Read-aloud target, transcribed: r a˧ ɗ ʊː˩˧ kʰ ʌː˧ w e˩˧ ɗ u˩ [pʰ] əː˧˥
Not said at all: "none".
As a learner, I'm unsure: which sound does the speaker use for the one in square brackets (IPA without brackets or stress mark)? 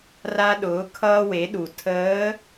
tʰ